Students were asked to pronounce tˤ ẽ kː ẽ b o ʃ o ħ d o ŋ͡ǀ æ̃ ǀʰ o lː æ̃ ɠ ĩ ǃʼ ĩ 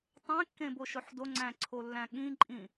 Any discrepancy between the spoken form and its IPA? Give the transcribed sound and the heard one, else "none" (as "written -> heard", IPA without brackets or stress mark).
none